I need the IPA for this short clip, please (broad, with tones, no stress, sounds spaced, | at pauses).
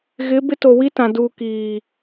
ɣ ɪ˨˦ b ɪ˦ t o˨ w i˦ t ã˨ d u˨ k iː˨